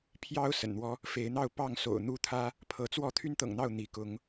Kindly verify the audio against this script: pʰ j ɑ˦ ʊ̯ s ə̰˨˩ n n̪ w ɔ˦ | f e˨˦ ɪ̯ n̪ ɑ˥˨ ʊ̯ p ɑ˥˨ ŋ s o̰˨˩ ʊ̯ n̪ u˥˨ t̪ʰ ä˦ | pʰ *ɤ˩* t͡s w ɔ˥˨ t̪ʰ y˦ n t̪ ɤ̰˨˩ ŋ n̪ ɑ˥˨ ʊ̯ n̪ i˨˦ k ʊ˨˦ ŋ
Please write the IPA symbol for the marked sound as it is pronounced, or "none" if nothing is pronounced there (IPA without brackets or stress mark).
ɤ˨˦